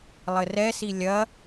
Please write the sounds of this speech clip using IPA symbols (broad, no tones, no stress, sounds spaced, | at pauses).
lˠ ɘ r ɛ s i lʲ ɐ